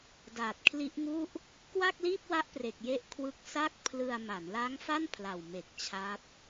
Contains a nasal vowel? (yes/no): no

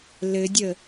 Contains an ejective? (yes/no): no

